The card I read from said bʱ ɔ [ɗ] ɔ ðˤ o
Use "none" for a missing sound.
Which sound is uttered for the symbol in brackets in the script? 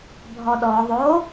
ɗ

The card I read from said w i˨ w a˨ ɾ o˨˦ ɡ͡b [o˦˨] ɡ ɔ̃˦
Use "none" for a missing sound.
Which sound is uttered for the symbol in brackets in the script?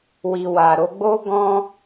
o˦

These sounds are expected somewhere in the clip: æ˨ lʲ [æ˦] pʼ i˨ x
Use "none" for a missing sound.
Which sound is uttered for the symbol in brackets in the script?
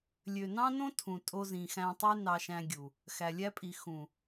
æ˦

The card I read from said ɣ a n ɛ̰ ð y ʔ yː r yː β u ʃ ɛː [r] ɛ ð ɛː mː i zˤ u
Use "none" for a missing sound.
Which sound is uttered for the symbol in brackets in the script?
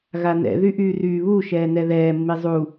n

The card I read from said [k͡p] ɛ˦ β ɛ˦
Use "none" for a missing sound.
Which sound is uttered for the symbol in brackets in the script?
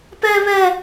p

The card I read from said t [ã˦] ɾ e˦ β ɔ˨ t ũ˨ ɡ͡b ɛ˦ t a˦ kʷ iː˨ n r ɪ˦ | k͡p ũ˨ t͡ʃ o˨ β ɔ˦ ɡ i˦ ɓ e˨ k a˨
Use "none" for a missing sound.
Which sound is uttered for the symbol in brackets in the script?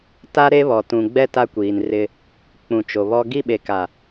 a˦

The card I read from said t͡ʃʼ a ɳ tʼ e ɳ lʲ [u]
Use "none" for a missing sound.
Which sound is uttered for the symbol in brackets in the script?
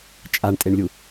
u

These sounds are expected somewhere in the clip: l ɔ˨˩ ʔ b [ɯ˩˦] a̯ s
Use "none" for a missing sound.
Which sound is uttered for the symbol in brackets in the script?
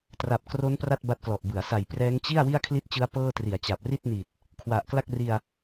ɯ˩˦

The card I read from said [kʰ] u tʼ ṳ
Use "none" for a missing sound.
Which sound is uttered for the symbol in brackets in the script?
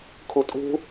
kʰ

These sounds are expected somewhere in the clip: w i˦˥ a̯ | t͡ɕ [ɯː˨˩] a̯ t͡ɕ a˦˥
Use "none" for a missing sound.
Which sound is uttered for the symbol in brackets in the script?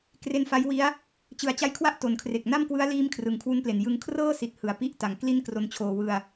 ɯ˨˩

